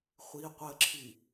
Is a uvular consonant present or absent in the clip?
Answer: present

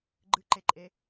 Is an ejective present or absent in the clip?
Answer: present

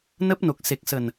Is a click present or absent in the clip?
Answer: absent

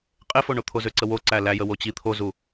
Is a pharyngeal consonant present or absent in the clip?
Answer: absent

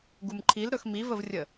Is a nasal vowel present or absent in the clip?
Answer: absent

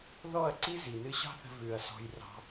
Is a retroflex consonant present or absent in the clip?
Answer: absent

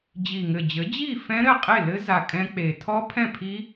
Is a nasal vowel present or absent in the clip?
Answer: present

